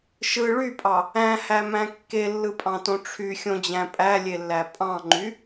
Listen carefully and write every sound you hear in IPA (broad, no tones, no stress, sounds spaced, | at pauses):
ʃ ɯ ɭ y pʼ ɑ | æ̃ h æ m æ̃ kː e lː ɯ pʼ ɑ̃ t õ ʈ͡ʂʰ y xʲ õ d͡ʑ æ̃ pʼ æ lʲ e lː æ pʼ ɑ̃ ŋ͡ǃ y